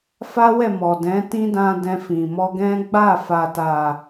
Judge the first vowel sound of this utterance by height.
low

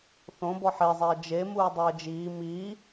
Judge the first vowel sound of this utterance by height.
mid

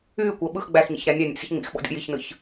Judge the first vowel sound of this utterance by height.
high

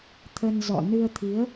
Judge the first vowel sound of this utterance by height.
mid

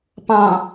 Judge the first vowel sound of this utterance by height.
low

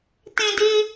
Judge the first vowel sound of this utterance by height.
high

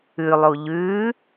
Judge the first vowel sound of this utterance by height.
high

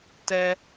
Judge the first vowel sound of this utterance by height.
mid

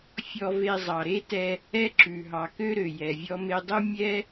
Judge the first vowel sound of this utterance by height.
mid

